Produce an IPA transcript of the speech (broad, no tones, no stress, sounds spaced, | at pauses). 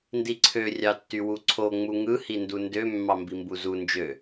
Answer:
n d i ǀʰ ø rʲ ɑ tː y w u ǀʰ o ŋ͡m u ŋ ɯ h i n d u n d ø mː ɑ m b i m b u z u n d͡ʒ ø